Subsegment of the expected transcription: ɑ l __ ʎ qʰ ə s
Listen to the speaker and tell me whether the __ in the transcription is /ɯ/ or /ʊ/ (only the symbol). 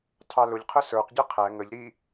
ʊ